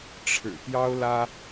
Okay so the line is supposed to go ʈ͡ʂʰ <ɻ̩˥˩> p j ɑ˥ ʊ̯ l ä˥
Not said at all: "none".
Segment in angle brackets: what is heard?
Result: ɻ̩˨˩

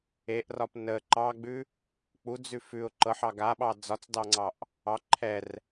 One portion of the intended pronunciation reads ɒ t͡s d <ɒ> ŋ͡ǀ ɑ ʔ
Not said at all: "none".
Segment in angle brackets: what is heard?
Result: ɑ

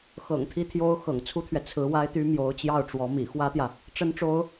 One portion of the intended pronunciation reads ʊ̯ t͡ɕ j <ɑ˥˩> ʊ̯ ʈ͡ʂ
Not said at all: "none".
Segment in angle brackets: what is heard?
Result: ɑ˥˩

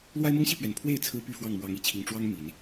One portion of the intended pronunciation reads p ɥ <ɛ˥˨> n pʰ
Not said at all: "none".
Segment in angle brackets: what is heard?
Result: ɛ˨˩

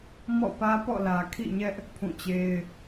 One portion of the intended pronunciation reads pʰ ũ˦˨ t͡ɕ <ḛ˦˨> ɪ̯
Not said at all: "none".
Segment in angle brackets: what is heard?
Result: e˦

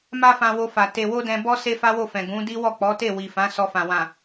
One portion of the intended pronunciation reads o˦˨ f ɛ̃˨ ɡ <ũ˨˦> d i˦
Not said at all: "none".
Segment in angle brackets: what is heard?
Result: ũ˨˦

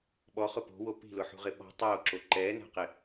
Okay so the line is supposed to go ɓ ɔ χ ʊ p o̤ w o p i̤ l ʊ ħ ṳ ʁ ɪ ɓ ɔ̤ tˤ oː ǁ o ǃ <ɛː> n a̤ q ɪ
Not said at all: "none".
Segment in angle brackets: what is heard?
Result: ɛː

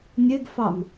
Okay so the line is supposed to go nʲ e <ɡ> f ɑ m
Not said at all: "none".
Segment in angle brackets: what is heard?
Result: ɡ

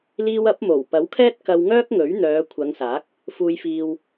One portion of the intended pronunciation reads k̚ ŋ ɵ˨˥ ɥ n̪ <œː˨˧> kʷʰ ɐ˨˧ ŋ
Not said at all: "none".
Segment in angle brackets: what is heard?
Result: œː˨˧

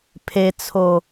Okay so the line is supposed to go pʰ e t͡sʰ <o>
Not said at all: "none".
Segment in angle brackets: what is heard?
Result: o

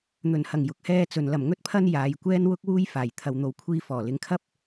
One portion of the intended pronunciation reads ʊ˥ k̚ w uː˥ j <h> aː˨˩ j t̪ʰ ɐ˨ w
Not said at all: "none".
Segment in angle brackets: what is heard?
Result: f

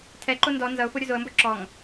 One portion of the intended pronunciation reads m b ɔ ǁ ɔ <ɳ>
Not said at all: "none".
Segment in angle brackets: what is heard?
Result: ŋ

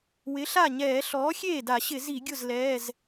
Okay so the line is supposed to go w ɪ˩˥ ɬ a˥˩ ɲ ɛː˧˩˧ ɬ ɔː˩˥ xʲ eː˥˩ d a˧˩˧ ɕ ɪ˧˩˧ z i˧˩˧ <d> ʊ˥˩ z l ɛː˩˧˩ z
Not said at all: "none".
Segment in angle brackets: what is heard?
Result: ɡʲ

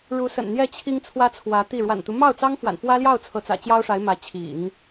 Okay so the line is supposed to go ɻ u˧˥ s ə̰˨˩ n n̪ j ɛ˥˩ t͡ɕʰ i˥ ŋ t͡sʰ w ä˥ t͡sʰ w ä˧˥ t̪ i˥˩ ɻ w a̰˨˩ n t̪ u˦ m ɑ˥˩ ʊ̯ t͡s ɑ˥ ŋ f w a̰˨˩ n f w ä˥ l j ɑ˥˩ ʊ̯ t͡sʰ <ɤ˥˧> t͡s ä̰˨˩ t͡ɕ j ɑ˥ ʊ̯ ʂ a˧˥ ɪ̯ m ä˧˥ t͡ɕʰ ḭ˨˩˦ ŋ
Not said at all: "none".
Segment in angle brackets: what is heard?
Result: ɤ˧˥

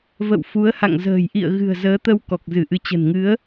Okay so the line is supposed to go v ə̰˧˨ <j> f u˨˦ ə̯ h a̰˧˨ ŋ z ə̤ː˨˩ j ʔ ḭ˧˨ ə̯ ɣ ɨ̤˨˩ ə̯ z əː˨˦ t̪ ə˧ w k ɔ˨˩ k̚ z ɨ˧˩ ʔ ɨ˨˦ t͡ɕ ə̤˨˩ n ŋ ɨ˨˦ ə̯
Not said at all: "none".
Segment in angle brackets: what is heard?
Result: w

